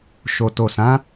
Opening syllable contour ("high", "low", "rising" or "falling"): low